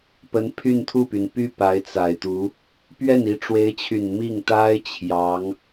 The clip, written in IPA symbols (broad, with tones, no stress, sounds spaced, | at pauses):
p ə˧˥ n pʰ y˥˧ n t̪ʰ u˥˩ p y˩ n p y˥˩ p a˧˥ ɪ̯ t͡s a˨˩ ɪ̯ t̪ u˧˥ | p ɥ ɛ˥˩ n i˧˥ ʈ͡ʂ w e˧˥ ɪ̯ t͡ɕʰ y˨˩ n m i˥˩ ŋ t̪ a˥ ɪ̯ t͡ɕʰ j ɑ˧˥ ŋ